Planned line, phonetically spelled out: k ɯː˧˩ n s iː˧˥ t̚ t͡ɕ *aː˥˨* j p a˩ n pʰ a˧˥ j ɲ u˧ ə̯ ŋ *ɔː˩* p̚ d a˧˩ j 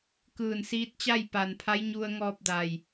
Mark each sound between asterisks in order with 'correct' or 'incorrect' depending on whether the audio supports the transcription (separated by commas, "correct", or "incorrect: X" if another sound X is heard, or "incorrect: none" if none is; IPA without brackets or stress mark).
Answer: incorrect: a˥˨, incorrect: ɔː˧